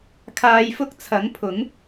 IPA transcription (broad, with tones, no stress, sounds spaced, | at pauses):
kʰ aː˧ j f ʊ˥ k̚ t͡sʰ ɐ˨˥ ŋ pʰ ʊ˨˥ ŋ